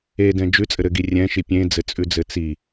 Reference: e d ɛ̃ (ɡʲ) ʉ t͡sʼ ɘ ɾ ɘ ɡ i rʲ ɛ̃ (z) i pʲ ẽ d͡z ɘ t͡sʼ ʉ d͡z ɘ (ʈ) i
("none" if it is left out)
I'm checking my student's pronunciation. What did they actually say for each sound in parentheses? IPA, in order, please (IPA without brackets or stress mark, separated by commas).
d͡ʒ, ʃ, t͡s